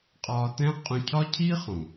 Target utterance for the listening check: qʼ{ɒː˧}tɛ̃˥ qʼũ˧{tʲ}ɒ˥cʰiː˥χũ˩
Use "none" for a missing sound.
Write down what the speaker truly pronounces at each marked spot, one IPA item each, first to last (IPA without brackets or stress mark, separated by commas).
ɒː˧, cʰ